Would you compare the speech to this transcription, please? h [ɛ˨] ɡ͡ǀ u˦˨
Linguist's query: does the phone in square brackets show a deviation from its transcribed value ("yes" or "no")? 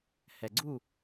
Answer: no